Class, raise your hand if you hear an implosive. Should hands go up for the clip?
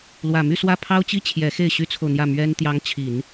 no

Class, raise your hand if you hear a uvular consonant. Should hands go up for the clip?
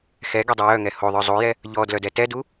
no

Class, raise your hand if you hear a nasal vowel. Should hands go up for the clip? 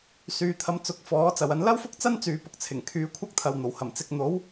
no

